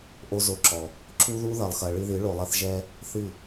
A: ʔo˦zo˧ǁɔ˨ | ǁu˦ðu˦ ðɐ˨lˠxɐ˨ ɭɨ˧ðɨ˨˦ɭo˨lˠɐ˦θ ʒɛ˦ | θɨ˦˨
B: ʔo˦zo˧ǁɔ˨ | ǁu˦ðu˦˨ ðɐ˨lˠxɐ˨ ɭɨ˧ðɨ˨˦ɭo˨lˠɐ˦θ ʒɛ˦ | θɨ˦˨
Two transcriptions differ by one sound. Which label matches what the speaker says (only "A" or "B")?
A